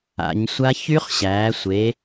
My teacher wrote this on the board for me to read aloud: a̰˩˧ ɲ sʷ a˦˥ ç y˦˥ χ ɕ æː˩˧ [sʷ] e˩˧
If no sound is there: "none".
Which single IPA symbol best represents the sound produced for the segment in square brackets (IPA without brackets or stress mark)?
sʷ